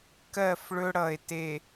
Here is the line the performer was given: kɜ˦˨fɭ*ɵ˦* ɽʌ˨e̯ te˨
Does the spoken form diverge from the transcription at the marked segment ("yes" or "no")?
no